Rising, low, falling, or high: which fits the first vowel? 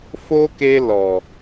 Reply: high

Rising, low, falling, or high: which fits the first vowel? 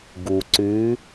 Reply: low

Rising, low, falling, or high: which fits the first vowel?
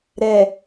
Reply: low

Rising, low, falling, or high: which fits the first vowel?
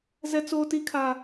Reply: high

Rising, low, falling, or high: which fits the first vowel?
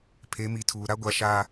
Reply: rising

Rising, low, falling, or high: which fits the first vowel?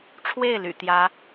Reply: falling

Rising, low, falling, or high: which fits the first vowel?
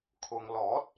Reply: low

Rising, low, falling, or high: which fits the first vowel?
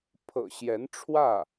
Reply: low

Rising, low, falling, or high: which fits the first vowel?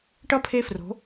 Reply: falling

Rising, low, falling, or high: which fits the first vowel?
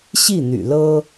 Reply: falling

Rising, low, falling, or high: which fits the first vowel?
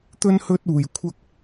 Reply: high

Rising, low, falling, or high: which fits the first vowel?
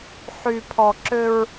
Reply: high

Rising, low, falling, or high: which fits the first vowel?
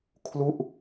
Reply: falling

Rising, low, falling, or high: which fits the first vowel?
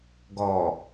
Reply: low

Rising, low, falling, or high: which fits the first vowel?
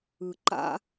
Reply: low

